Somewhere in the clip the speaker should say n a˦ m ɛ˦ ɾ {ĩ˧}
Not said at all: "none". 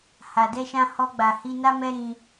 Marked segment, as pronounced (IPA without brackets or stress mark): ĩ˧